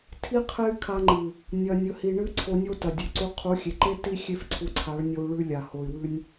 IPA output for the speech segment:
tʰi˦qʰe˦y̯ kʰa˧ŋ͡ǃɨ˨ | nʲɐ˧nʲɵ˧hi˧ ɳɨ˦ ǀʰo˧nʲo˦tɐ˨ dʲu˨ǀu˧ qʰu˨˦xʲe˨ǃe˦ ti˦ xʲe˦fǀʰu˧ǀʰa˨˦ɭnʲo˧u̯ ɭʉ˧lʲa˨ ho˨y̯wʉ˧nʲ

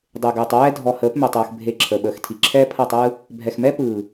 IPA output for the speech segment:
dˤe˨ɡɯː˨tˤwɛː˦ dʱɔ˨həː˨˦pmɛ˨tˤ ɯː˨x bʱe˨ ǁʰəː˨ɓəː˨xtʰi˨ ǁʰɛː˦pʰʌ˦˨tˤɯː˦ | bʱɛ˨xmɛ˦ pɯː˨

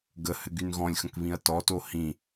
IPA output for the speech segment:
ɡəhɘ ɡynɣɔ̃lʲxə̃k βĩɐ̯tɔto hĩ

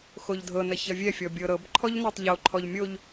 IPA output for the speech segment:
xoʎdʱɤnɐ çɐvʲɛfʲɔ bʲɤɾɤbǃʰɔʎ nɤtˤʎoǃʰɔʎ mʲoʎ

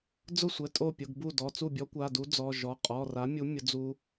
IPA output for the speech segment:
d͡zʊ˥˩sʷɛ˩˧˩ tʼo˥˩pʲʊ˩˧˩ɡ bu˥˩dɔ˩˧˩ t͡su˥˩bʲɔ˦˥kʷa˩˧˩du˦˥ d͡zɔ˩˧˩ʒɔ˩˧˩ qʼɔ˩˧˩ra˨˥mʲu˨˥ mʲʊ˨˥d͡zu˦˥

